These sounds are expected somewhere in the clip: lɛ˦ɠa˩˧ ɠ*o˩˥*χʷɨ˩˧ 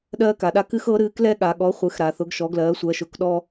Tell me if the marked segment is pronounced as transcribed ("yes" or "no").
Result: no